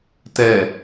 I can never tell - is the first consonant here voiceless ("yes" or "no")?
yes